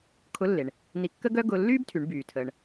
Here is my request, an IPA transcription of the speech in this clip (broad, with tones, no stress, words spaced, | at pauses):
kʰʊ˧˥lːe˩ɳ | ni˧kːə˥ɡœ˥ ɡʊ˧lːyː˥btʰy˩˧ɳ byː˩tʰəː˩ɳ